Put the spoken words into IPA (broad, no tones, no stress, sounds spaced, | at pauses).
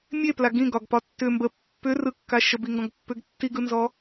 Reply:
mʲ e p l a ɡ ĩ ɡ ɒ ɡ p ɒ tː ʏ m b ə pː ʏ r ɯ kː a ʃ ə b i ŋ ɡ ɔ̃ ɡ pː ʏ ɡ tː i ɡ ɯ n z ɔ